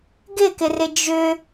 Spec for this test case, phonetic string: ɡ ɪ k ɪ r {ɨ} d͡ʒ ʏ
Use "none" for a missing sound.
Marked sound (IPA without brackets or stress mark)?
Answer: ɪ